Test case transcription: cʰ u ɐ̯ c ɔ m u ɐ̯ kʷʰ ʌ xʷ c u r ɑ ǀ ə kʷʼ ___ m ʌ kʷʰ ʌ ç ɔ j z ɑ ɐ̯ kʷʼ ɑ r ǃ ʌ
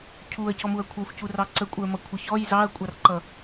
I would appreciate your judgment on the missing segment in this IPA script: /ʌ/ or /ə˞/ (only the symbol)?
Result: ə˞